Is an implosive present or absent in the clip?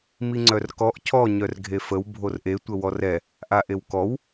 absent